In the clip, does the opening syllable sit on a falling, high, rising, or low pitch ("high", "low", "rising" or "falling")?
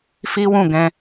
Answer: high